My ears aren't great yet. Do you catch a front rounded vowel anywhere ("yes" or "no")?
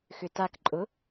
yes